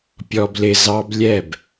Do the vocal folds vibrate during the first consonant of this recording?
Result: no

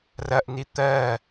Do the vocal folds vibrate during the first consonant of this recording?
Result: yes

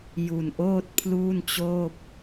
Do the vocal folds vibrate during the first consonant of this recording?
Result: yes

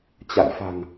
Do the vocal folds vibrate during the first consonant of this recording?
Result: no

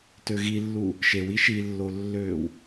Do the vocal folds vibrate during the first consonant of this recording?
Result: no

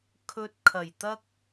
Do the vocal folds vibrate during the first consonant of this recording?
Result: no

